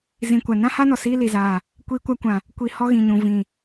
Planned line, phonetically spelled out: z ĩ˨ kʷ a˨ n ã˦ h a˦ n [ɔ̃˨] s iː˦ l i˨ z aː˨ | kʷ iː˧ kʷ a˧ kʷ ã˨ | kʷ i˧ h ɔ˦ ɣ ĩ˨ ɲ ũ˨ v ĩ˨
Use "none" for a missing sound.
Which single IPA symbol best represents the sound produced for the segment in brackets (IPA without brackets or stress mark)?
ɔ˨